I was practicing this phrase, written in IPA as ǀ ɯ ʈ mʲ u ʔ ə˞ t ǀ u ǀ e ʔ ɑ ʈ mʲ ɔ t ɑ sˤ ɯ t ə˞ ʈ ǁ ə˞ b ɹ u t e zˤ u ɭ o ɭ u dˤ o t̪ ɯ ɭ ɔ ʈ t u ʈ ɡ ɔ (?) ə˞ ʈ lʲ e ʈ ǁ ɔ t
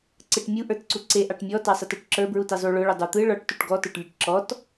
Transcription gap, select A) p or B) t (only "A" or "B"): B